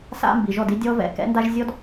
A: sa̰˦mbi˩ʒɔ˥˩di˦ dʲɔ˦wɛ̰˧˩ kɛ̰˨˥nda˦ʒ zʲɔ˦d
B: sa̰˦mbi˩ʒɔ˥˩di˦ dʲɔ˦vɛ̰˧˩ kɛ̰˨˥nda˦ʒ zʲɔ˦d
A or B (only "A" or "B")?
B